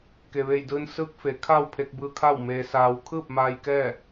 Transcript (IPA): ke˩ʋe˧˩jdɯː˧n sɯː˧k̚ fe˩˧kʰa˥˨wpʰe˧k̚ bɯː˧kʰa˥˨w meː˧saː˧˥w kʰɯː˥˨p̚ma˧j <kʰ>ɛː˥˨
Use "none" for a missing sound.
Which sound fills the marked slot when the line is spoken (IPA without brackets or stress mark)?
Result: k